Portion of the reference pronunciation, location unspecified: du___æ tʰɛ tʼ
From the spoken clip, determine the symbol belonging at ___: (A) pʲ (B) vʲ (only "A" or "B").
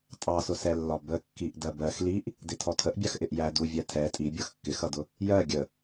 B